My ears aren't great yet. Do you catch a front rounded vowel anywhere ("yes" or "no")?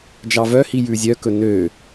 yes